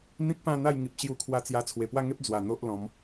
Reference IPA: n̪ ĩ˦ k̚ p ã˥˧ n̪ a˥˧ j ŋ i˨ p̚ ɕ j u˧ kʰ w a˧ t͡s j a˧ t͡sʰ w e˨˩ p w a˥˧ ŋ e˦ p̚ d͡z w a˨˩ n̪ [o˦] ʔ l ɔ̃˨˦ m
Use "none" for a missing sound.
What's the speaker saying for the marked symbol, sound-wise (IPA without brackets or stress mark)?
o˦